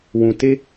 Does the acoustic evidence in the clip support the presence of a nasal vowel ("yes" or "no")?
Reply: yes